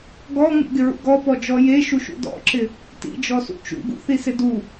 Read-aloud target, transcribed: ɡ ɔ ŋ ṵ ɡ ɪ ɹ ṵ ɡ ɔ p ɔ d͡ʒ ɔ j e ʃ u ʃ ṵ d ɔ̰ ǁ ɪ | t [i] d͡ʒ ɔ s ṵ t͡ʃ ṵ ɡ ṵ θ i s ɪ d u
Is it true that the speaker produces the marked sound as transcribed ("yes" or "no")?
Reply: no